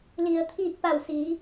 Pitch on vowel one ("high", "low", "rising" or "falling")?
low